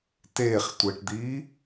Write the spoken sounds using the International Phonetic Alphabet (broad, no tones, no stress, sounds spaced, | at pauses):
t eː χ tʷ e ʈ d̪ iː